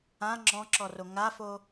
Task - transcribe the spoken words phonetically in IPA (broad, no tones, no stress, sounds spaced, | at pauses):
ã ŋ͡ǁ ɔ̃ ǁ ɔ r o ŋ a f o